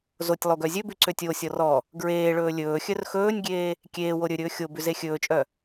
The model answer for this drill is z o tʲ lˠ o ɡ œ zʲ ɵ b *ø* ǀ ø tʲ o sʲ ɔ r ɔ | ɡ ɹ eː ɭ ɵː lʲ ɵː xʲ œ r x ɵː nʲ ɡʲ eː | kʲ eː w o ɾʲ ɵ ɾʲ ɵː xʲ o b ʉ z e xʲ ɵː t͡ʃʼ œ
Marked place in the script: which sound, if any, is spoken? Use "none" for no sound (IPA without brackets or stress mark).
ʉ